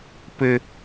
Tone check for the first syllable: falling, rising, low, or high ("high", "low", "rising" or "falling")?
high